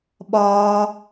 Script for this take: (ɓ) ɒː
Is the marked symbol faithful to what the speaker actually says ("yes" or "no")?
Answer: yes